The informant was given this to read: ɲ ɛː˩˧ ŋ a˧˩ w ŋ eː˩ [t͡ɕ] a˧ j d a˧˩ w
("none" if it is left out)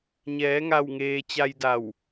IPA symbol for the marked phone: t͡ɕ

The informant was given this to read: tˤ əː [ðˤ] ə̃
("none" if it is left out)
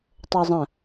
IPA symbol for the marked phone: zˤ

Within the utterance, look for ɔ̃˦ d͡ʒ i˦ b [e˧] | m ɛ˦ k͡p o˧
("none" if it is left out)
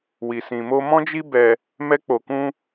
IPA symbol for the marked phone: ɛ˧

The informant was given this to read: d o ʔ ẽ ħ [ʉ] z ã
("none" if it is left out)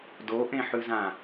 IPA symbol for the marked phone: ʉ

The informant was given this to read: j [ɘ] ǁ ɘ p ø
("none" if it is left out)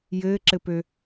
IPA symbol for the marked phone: ɘː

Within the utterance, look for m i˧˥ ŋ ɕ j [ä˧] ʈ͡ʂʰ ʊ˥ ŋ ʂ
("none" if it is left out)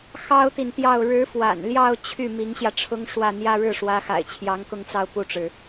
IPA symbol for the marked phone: ä˧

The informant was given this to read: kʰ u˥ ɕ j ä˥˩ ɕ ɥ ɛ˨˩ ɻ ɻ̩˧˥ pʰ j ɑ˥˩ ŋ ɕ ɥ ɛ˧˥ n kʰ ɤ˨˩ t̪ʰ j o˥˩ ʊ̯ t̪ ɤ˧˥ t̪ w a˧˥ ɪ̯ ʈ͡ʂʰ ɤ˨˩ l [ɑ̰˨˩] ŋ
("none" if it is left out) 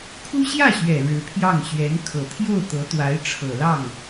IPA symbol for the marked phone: ɑ˥˩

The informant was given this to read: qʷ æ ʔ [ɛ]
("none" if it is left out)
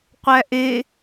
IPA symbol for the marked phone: e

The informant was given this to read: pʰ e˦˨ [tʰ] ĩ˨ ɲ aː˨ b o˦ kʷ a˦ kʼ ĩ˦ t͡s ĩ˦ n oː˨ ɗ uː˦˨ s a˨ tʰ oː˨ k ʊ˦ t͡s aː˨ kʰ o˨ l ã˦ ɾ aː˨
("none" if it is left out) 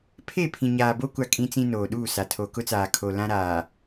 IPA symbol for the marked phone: pʰ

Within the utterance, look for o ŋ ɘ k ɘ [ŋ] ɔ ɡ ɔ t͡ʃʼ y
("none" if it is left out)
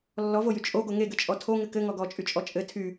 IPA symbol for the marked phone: ŋ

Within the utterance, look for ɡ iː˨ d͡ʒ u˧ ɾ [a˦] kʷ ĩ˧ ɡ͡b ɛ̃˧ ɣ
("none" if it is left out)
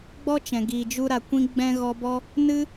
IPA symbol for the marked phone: a˨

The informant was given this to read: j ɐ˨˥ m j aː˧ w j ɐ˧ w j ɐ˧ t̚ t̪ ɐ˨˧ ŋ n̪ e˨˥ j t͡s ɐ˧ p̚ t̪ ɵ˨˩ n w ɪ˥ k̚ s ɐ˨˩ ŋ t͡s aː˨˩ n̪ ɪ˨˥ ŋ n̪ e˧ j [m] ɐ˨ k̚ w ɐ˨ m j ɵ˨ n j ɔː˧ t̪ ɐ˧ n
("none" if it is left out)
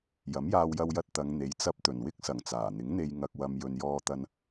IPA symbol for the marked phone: ŋ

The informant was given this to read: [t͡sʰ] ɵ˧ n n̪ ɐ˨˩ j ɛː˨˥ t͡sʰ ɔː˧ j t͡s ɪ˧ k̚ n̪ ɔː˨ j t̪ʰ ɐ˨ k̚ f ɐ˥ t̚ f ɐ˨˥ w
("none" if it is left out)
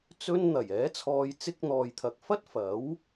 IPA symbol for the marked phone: t͡s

